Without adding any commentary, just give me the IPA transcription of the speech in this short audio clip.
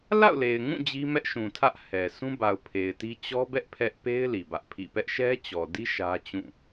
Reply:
l a̰˦˨ ʊ̯ l e˨ ɪ̯ ŋ ũ˦˨ d͡ʑ i˦ m ɛ˦ ʔ ʃ ũ˨ tʰ ä˦ ʔ h ɛ˨ s ũ˦ b a˨ ʊ̯ pʰ e˨ ɪ̯ t i˦ t͡ɕ ɔ˦ b ɛ˦ ʔ pʰ ɛ˦ ʔ p e˦ ɪ̯ l i˨ b ä˦ ʔ pʰ ḭ˦˨ p ɛ˦ ʔ ʃ ɛ˦ t͡ɕ ɔ˨ d i˦ ʃ ä˦ t͡ɕ ũ˦˨

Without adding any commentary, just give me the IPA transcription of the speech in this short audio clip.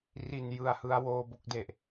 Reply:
r i˨˩ n j ɯ˦˥ a̯ h ɯ˦˥ a̯ w oː˧ b o˥˩ k̚ d e˨˩ ʔ

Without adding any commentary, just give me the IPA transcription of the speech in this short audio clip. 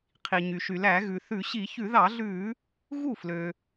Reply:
qʰ i˩ ɲ y˩ ʃ y˩ l æ˧˩˧ ɣ ʉ˩ θ ʉ˧˩˧ ɕ i˧˩˧ ç ʉ˧˩˧ ð ɑ˧˩˧ ɮ ʉː˧˩˧ | ɣ u˥˩ f l ø˩

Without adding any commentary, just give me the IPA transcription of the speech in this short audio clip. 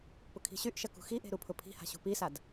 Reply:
p ʊ kʰ i̤ ɕ y ʔ ʃ ɐ k ṳ x i ʔ e̤ ɾ u pʰ ʊ pʰ i̤ h a̤ ɕ ṳ p i s a d

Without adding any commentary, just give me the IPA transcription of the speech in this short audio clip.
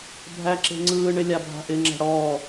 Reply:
bʱ æ ǁ e̤ ŋ͡ǀ ɯː ɳ ɪ lʲ a bʱ a̤ ʔ ɪ ŋ͡ǁ a̤ ɽ ɔː

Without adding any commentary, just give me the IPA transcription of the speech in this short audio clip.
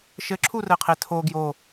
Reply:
ʃ ɘ ǁʰ u r ɘ qʰ e tʰ o ɡ j o

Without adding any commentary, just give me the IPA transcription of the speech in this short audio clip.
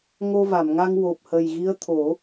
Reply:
ŋ o˧ v a˨˩˨ m ŋ a˧ ŋ w o˨˩ p̚ h ə˨˩ j ɣ i˧˥ ə̯ t̪ʰ o˨˩˦

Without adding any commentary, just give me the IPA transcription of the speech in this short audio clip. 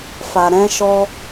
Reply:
f a˧ ɾ ɛ̃˦ ʃ ɔ˦

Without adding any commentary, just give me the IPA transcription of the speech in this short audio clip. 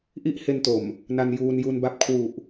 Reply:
ʔ i˥˩ ʔ h e˧ n t o˨˩ m | n a˧ n j uː˧ n j u˧ n b a˦˥ p̚ kʰ w u˨˩ ʔ

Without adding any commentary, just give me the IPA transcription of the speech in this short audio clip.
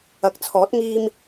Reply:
ɐ˨˥ k̚ t͡sʰ ɔː˨˥ t̚ ŋ iː˧ m

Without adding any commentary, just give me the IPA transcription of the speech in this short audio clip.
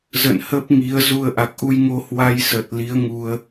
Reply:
z ə̰˧˨ n h ə˦˥ p̚ ŋ i˨˦ ə̯ z u˧ ə̯ ʔ a˨˩ k̚ ʔ u˧ j ŋ o˧ h w a˧ j s ə˨˩ t̚ l i˨˦ ə̯ ŋ u˧ ə̯

